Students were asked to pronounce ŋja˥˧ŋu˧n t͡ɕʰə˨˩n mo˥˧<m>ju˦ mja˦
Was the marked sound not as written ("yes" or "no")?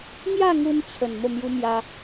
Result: no